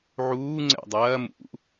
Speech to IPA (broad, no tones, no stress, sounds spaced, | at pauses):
ʕ uː ŋ͡ǀ ɛ̰ dˤ ɐː m ṵ